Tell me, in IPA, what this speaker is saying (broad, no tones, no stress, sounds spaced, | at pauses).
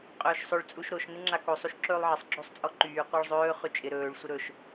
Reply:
qʼ ɵː ʃ sˤ ɵ ɭ t͡sʼ u ʃ ɾ o ʃ n ɪ ŋ͡ǁ a k o sˤ u ʃ ǁ ɵː lˠ ʕ ɪ sˤ ɡ͡ǁ o sˤ t͡sʼ ɔ ǃ yː qʷ a ɭ zˤ ɵː χ y t͡ʃʼ ɪ ɾ ɵː ɭ sʷ ɪ ɾ ɵ ʃ